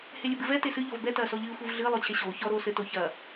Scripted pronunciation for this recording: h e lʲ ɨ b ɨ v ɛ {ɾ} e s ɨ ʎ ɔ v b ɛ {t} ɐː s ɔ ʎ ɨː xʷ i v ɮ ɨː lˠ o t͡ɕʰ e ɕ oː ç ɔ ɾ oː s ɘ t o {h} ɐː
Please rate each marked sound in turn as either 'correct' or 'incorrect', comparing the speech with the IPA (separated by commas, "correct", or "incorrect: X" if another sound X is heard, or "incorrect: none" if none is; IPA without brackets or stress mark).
incorrect: t, correct, incorrect: ç